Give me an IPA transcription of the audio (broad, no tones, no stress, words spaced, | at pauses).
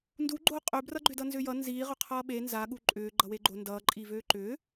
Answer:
nduɡ͡ǃoː qʼøbrʌɡ͡ǃʏdʌ nzʏːjʌ nziːʁʏ qʰʌːɓe nzaɠu ǃʼʏː ɡ͡ǃʌweɡ͡ǃo ndʌːǃʼiːvøː ǃʏː